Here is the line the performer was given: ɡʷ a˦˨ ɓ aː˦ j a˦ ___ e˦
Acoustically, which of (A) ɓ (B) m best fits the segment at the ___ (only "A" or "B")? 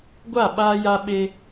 A